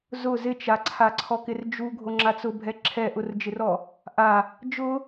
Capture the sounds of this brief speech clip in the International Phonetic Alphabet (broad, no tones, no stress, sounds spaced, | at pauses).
z ʊ z ɪ t͡ʃ a ǀʰ a ǀʰ ɔ k ɪ r d͡ʒ u ɡʱ o ŋ͡ǁ a t͡s ʊ bʱ ɛ ǁʰ ɛ ʔ ʊ r d͡ʒ ɪ r ɔ | ʔ a | d͡ʒ ʊ